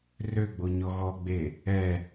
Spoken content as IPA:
r ø ɡ͡b o ɲ ɔ ɣ ɔ ɡ͡b e | ɛ

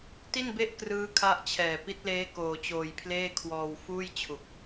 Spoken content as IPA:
t i˥˩ n b e˥˩ ʔ k r ɯː˦˥ kʰ a˦˥ ʔ t͡ɕʰ ɛː˨˩ p i˦˥ t̚ l eː˦˥ k oː˧ t͡ɕ oː˧ j pʰ l eː˥˩ kʰ w ɔː˧ w f uː˥˩ j t͡ɕʰ u˨˩ k̚

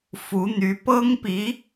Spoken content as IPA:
f u˧˥ n̪ y˧˥ p ɤ˥ ŋ p i˧˥

